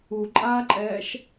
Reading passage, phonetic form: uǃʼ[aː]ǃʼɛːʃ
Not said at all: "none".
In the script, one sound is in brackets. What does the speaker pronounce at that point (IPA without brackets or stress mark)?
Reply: aː